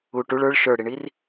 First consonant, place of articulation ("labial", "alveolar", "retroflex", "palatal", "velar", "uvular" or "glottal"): retroflex